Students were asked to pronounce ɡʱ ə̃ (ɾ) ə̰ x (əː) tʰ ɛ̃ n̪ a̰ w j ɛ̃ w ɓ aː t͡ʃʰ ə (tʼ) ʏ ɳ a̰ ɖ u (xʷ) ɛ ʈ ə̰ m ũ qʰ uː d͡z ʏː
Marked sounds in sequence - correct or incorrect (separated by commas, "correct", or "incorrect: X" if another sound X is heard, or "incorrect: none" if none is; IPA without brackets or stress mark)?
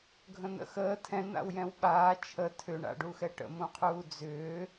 incorrect: n̪, correct, incorrect: tʰ, incorrect: x